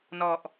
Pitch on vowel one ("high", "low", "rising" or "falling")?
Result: low